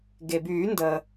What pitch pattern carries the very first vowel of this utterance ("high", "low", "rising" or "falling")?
low